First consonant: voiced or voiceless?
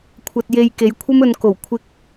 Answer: voiceless